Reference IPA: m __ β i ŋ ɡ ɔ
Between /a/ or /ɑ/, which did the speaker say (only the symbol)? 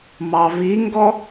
ɑ